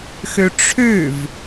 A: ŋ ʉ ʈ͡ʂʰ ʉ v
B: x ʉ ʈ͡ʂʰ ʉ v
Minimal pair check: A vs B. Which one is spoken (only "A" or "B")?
B